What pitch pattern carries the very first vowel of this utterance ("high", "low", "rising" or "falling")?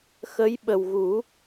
rising